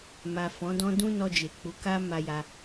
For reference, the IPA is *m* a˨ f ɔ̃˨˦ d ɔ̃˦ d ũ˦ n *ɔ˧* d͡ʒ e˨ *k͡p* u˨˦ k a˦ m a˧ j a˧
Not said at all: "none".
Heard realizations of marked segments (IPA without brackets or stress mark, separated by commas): m, ɔ˧, k͡p